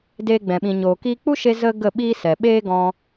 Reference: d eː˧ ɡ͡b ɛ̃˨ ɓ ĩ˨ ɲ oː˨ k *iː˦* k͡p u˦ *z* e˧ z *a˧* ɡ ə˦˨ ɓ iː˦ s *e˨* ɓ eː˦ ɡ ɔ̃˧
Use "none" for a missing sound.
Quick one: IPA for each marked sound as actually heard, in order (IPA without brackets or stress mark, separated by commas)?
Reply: iː˧, ʃ, ə˧, ɛ˨